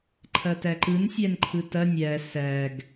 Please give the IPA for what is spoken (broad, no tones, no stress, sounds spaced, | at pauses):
ǃʰ ɐ t æ ǃ ɯ n sʲ æ n ǃʰ ɯ t ɐ nʲ æ s æ ɡ